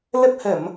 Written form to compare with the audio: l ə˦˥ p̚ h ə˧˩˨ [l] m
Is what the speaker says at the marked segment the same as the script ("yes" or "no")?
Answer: no